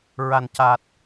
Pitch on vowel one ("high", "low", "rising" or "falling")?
low